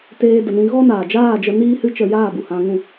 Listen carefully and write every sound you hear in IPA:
t eː˧ d ə˨ n ĩ˧ ɣ ɔ˦ n aː˨ d͡ʒ aː˦˨ d͡ʒ ə˧ n iː˦ h ɨ˦ t͡ʃ ə˧ j aː˦˨ b u˨ h ã˧ ŋ ũ˦˨

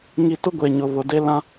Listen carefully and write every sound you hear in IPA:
ŋ i˨ t ʊ˦ ɡʷ e˨ ɲ ʊ˨ β ʊ˨ d e˦ l ã˦

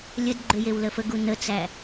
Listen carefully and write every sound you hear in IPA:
lʲ ə d ɡ͡ǃ ʏ j e w l ə f ə ɡ u n ə t͡s æ

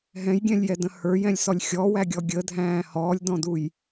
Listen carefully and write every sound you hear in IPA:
ɦ ɛ̃ j ɡʲ ɛ̃ lʲ j ɛ d ə̃ h ə˞ j ɛ̃ lʲ s ɔ lʲ xʲ ɔ w æ ɡʲ ɔ ɡʲ ə dʱ æ̃ː h ɔː lʲ d ɔ̃ d u j

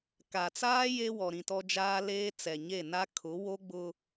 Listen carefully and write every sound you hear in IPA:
k a˨ t͡s aː˦ j e˦ w ɔ˨ ɾ ĩ˨ t ɔ˦ d͡ʒ aː˦ l eː˦ t͡s ɛ˨ ɲ e˦˨ n a˦ kʰ ʊ˨˦ w o˦ ɡ͡b ʊ˦

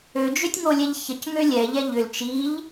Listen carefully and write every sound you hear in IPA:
ø d͡ʒ ø tʲ ŋ o lʲ ɛ ʎ ç ə c ŋ ø lʲ ɛ ʎ ɛ ʎ ʏ l t͡ʃ i ʎ

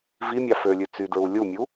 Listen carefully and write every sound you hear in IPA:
v i mʲ ɑ f ø lʲ ʉ t͡s y d ɹ u lʲ u mʲ u

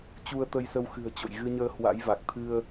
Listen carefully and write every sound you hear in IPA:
t͡ɕ u˧ ə̯ t̪ ə˧ j s ə˧ w x ɨ̤˨˩ ə̯ t͡ɕ o̰˧˨ j ɣ ɨ˧ ɲ əː˧ h w a̰˧˥ j v a˨˩ k̚ t̪ʰ ɨ˧ ə̯

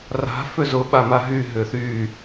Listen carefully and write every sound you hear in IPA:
r a̤ f ʏ z ʊ ɓ a m a ɦ y ɦ ʏ θ y

